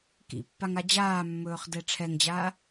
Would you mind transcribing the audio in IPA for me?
k ḭ pː a ŋ a d͡ʑ aː mː ɵː χ d ɛ ʈ͡ʂʰ ɛ ŋ d͡ʑ aː

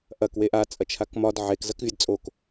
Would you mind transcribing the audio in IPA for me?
ʔ ɐ k w e ʔ a t͡sʼ ɐ t͡ʃʰ a k m ɒ d ʕ e k z ɐ k vʲ a d t͡sʼ o k

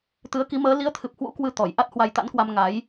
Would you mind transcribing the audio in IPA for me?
t̪ ɨ˨˦ ə̯ k i˨˦ m əː˨˦ l i˨˦ ə̯ t̪ʰ ɨ˨˩ p̚ h w ṵ˧˥ k w ɨ˧ t̪ ɔ˧˩ j ʔ a˦˥ t̚ h w a˧ j t̪ a̰˧˥ n k w a˧ m ŋ a˨˦ j

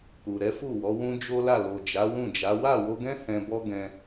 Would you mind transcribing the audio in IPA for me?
k u˨ ɾ ɛ˨˦ f u˦˨ w ɔ˨˦ w ũ˦ d͡ʒ o˦ l a˦˨ l o˨ d͡ʒ a˨˦ w ũ˦˨ d͡ʒ a˨˦ w a˦˨ w o˧ ɡ ɛ̃˦ h ɛ̃˧ b ɔ˦ ɡ ɛ̃˧

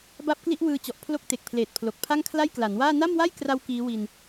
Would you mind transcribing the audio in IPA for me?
b a˦˥ p̚ k l i˦˥ ʔ w ɯː˧ t͡ɕ ɔ˨˩ ʔ pʰ l o˦˥ k̚ t e˨˩ k̚ pʰ l eː˨˩ t̚ pʰ l o˨˩ k̚ pʰ a˥˩ ŋ kʰ l a˥˩ j k l a˩˦ n w aː˥˩ n a˥˩ m w a˥˩ j k r a˦˥ w k iː˦˥ w i˧ n

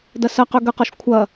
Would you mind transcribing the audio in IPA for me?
d ɐ s ɐ q ø ɡ ə q ɔ ʃ kʷʰ ɐ

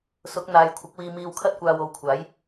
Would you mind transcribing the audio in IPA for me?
s ʊ˨˥ k̚ n̪ aː˨˧ j kʷʰ ɪ˨˥ k̚ w iː˧ m iː˧ w kʰ ɐ˥ t̚ kʷ aː˧ w o˨˧ w kʷʰ aː˨˥ j

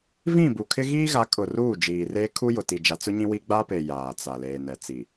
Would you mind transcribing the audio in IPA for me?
v ĩ˦˨ b u˨ kʰ ɪ˦ ɣ iː˦ ɣ a˨˦ kʼ ʊ˨ r uː˦˨ d͡ʒ iː˨ r eː˦ kʰ u˦ j ʊ˨ t i˨ d͡ʒ a˨ t͡s ʊ˦ ɲ ĩ˦ w i˦ ɡ͡b a˦ p e˨ j aː˨ t͡s a˨ l eː˨ n ɛ˨ t͡s i˨

